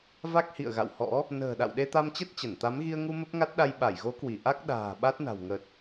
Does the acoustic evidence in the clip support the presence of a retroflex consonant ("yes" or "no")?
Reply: no